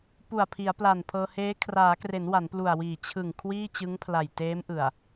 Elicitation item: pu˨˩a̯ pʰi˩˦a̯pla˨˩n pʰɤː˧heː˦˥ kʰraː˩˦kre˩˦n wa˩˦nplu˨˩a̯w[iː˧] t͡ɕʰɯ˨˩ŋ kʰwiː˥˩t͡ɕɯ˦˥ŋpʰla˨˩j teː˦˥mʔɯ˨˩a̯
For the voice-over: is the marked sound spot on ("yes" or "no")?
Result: no